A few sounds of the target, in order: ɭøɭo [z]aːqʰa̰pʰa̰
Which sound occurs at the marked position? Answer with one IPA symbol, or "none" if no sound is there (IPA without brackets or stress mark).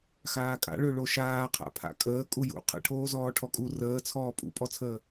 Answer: ʃ